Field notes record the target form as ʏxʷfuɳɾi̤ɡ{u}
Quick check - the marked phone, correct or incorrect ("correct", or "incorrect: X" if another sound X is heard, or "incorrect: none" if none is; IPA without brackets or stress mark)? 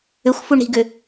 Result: incorrect: ʏ